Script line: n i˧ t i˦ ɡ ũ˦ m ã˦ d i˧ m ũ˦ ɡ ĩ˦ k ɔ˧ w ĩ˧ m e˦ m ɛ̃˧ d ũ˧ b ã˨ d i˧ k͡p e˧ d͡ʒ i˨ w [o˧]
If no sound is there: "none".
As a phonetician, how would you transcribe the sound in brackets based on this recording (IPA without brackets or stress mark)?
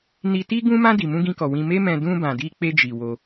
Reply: o˧